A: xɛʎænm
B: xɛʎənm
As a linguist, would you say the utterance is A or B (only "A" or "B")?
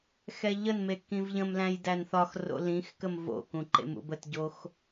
B